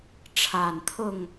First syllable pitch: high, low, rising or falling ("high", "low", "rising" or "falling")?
low